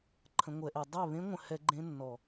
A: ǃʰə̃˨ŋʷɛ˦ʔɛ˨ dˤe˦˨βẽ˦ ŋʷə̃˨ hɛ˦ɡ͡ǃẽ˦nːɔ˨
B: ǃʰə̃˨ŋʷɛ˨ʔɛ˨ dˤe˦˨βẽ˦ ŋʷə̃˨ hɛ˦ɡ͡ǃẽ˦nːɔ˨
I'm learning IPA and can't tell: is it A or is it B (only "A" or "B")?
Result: B